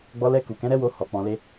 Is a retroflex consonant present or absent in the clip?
absent